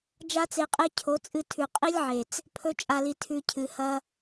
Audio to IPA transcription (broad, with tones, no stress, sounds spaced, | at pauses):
d͡ʒ a˦ t͡s e˧ qʼ e˦ cʰ o˨˦ t͡sʼ ɨ˧ tʰ ʉ˨ qʼ i˦ lʲ ʕ e˨ t͡s | pʰ ɵ˦ t͡ʃʼ a˧ l i˧ tʰ ʉ˧ cʰ ɨ˨ h ɐ˧